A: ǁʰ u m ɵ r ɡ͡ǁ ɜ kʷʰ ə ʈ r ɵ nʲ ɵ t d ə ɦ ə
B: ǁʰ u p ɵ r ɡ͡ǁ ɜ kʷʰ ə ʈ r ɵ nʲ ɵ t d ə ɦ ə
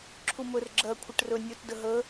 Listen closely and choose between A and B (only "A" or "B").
A